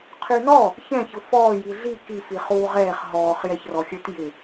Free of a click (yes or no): yes